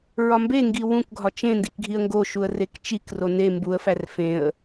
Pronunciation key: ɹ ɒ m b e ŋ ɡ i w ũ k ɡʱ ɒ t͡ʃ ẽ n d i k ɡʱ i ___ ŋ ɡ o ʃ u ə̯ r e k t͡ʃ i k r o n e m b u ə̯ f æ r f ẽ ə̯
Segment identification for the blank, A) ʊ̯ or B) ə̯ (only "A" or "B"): B